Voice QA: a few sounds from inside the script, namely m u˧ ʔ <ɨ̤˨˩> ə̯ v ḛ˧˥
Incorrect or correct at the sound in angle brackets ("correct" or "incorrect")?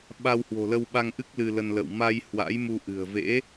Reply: correct